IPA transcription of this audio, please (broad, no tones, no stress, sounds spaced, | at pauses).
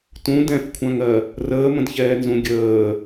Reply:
t ũ d ɛ̃ f kʷʰ ã ŋ ɜ | r əː m ə̃ d ç ɛː n z ũ ɡʲ əː